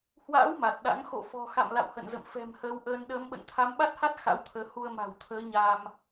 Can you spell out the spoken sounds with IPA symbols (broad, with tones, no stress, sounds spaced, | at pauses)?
h w a̰ː˧˥ w m a˨˩ t̚ ɗ a̰˧˥ ŋ x o̰˧˨ f ɔ̤˨˩ x a̰˧˨ m l a̰˧˨ w h ə̰˧˨ n z ə̰˧˨ m f ɛ̤˨˩ m h əː˨˦ w ʔ əː˧ n ɗ əː˨˦ m ɓ ə̰˧˨ n t̪ʰ a˨˦ m ɓ a˦˥ t̚ h a˦˥ t̚ x a̰˧˥ w t̪ʰ əː˨˦ h u˧ ə̯ m a̤˨˩ w t̪ʰ əː˨˦ ɲ a˧ m